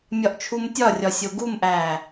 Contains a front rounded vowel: no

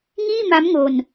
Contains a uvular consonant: no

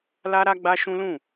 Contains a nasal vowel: yes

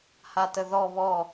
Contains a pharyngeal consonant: no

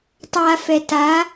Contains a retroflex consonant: no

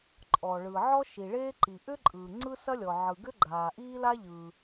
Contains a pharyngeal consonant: yes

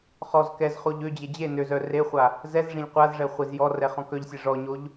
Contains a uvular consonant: yes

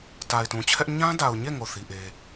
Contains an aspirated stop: yes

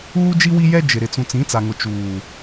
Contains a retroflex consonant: no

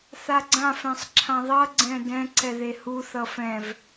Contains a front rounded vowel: no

